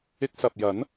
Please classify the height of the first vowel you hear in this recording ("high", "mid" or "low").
high